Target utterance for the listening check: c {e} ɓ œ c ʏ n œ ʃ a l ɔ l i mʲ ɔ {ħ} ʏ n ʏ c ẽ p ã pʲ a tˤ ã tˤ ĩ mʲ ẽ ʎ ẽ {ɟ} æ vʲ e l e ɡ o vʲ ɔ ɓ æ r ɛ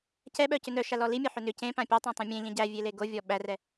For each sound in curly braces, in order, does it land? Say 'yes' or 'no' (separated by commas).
no, yes, yes